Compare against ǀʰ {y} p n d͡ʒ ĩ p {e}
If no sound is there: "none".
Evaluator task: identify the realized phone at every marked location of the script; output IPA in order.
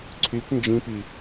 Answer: y, i

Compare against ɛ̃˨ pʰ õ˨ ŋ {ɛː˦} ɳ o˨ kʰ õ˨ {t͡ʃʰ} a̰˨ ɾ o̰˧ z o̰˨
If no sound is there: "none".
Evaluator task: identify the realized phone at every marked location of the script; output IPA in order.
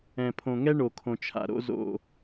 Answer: ɛ˦, t͡ʃʰ

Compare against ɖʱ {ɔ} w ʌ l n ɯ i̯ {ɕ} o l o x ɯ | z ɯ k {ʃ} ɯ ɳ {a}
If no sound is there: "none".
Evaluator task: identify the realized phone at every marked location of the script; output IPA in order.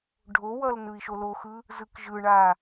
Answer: o, ʃ, ʒ, a

